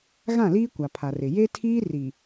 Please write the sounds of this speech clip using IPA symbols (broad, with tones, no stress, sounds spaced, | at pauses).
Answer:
ɣ ã˦˨ l iː˦ kʷ a˨ pʰ a˨ r ɪ˨ j e˦ tʰ iː˦ r i˨